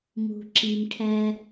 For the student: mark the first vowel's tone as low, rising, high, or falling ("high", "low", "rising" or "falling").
low